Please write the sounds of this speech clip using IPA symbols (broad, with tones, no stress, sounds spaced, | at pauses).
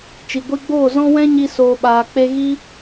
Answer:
t͡ʃ i˨ ɡʷ i˧ ɡ͡b oː˦˨ z ɔ̃˦ w ɛ̃˦ ɲ i˧ s oː˨ ɓ aː˨ k͡p e˧ ɣ i˦